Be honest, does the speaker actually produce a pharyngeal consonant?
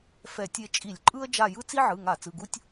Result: yes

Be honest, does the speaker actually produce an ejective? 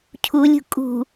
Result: yes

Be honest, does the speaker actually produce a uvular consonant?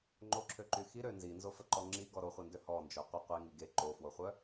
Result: yes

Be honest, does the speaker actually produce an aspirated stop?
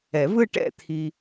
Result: yes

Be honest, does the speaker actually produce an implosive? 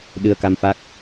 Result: yes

